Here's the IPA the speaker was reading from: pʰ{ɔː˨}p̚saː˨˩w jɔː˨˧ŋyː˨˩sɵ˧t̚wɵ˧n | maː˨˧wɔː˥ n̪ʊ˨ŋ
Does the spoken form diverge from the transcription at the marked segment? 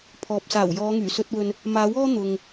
no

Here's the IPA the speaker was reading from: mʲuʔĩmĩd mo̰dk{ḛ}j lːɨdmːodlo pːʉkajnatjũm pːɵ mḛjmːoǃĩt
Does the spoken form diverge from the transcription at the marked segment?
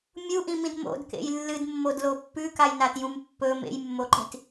no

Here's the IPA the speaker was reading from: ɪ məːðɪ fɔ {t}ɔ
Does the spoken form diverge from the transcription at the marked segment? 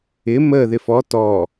no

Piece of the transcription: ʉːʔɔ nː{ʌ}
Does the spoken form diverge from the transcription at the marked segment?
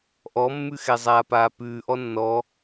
yes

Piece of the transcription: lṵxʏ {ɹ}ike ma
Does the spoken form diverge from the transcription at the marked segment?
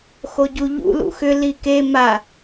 yes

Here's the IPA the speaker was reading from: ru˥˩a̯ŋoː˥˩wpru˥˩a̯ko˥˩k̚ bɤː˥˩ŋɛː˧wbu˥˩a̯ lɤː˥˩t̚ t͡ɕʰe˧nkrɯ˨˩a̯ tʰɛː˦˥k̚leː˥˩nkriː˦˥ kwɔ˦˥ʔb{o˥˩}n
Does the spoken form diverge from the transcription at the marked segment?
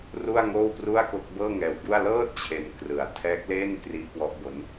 yes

